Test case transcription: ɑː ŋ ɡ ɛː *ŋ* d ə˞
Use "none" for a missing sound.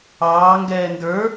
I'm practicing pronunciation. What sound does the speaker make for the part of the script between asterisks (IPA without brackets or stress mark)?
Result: n